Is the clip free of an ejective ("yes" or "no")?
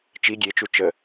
yes